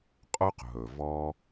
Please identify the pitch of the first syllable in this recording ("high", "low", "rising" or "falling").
high